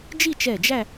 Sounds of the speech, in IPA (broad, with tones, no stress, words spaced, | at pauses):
d͡ʒi˥˧t͡ʃɛ˧˩ d͡ʒæ˥˧